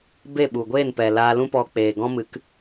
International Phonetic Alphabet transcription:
b e˦˨ ɓ u˨ ɡʷ eː˦˨ n p ɛ˨ l aː˧ l ũ˦ p ɔ˧ k͡p eː˨ ɡ ɔ̃˦ m ɨ˨˦ k

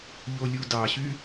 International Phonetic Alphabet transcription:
ʎ o lʲ u d ɑ ɕ y

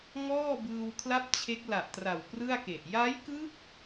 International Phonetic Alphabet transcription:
ŋ ɔː˥˩ b ɯː˧ w kʰ l a˥˩ p̚ t͡ɕʰ e˦˥ k̚ l a˨˩ ʔ t r a˨˩ w p r ɯ˥˩ a̯ k e˨˩ ʔ j a˦˥ j k ɯ˦˥ k̚

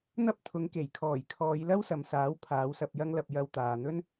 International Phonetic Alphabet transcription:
n̪ ɐ˥ p̚ t̪ʰ ʊ˨˧ ŋ k e˨˩ j kʰ ɔː˨˩ j kʰ ɔː˨˧ j l ɐ˥ w s ɐ˨ m s aː˨˥ w pʰ aː˨˥ w s ɐ˧ p̚ j ɐ˥ ŋ l ɐ˧ p̚ j ɐ˧ w t̪ aː˨ n̪ ɵ˥ n

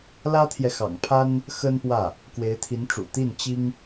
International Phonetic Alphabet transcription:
l ä˥ t̪ʰ j ɛ˨ x ɑ̰˨˩ ŋ pʰ a˥ n | x ə˥ n p w ä˥˩ | k w e˧˥ ɪ̯ t̪ʰ i˧˥ n ʈ͡ʂ ṵ˨˩ t̪ i˥˩ n t͡ɕ i˥ ŋ

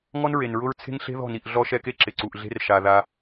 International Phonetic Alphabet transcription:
ŋ ɔ˦ n ɹ e˨ n ɹ ʊ˦ ɹ t͡sʰ e̤˦ ŋ ɬ e̤˦ ð ɔ̤˦˨ n i˦˨ ʔ ɮ ɔ˦ ʃ ɛ˦ k e˦ ǁ ɪ˨ ǀ u˨ ʔ ɮ e̤˦ r ʃ a˨ ð a˦

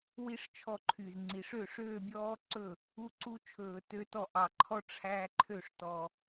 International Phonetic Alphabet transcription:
w i˦˥ ʂ t͡ʃʰ ɔ˥˩ ǃʰ y˨˩ z ŋ͡ǀ i˨˩ ʂ ø˥˩ ʂ øː˥˧ bʲ ɔː˦˥ ǀ ɵ˥˩ | u˥˧ ǀ u˦˥ t͡ʃʰ ɵː˨˩ t ø˦˥ t ɔ˥˩ ʔ ɑ˨˩ ǃʰ ɔ˥˧ ʈ͡ʂʰ æ˦˥ ǃʰ ø˥˩ ʂ t ɔ˨˩

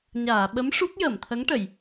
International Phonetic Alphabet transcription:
ɲ aː˨˩˨ ɓ ə˧˥ m ʂ u˦˥ k̚ j əː˨˩˨ m t̪ʰ ə˧˥ ŋ ʈ ə˨˩˨ j

